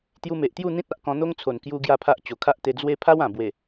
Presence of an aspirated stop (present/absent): present